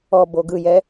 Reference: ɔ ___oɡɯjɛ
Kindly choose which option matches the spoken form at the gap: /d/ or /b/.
b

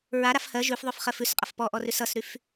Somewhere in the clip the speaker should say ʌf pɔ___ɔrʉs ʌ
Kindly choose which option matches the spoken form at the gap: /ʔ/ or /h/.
ʔ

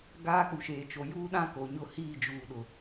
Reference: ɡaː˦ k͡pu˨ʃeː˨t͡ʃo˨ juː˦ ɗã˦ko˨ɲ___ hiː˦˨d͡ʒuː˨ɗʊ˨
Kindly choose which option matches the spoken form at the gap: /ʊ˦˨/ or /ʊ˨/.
ʊ˦˨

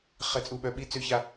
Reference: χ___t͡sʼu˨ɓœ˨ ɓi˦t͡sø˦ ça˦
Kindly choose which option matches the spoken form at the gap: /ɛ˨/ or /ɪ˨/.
ɛ˨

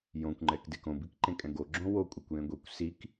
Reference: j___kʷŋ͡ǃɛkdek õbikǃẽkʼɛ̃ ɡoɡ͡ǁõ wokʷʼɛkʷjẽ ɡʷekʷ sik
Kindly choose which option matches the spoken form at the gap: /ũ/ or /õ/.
õ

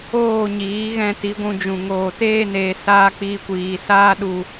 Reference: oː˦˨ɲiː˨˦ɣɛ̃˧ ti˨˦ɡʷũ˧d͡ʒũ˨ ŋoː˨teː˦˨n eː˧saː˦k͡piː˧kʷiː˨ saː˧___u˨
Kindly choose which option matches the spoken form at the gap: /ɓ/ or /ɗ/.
ɗ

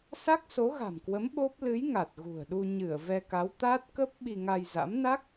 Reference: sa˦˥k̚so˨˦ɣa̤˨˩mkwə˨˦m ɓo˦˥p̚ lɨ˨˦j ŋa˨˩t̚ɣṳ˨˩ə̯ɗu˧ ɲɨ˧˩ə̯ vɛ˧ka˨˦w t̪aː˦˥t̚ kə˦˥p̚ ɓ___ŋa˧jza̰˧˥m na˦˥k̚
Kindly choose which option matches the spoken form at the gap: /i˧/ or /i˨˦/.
i˧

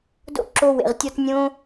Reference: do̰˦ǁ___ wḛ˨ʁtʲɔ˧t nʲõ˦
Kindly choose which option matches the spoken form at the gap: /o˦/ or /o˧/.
o˧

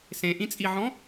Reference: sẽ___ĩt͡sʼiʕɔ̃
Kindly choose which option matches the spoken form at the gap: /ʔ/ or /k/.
ʔ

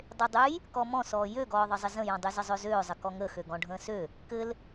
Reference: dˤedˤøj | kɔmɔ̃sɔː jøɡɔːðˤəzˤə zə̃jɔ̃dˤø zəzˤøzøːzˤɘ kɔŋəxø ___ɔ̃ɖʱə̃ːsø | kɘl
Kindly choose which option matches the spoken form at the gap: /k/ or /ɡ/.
ɡ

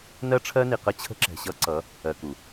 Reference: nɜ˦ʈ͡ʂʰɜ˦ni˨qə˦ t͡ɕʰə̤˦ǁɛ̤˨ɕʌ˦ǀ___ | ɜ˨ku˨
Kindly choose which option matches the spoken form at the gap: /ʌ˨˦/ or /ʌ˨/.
ʌ˨˦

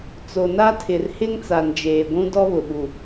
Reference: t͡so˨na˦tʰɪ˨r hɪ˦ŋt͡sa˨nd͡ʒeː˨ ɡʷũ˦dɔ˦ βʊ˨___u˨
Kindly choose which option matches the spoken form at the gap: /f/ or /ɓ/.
ɓ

